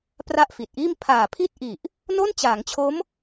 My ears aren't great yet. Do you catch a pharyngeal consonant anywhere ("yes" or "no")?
no